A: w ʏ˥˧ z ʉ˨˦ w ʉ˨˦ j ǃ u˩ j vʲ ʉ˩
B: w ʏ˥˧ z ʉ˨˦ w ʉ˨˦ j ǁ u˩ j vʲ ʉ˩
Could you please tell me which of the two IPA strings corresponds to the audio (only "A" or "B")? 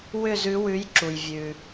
B